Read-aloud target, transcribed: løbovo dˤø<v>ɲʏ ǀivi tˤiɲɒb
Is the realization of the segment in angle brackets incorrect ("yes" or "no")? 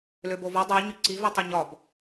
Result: yes